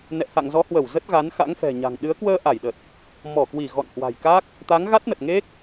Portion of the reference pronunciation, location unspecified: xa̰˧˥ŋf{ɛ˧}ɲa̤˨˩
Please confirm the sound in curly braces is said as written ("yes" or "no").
no